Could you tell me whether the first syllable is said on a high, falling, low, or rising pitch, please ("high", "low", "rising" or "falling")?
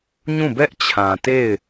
falling